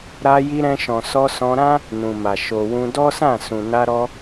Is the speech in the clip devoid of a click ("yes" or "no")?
yes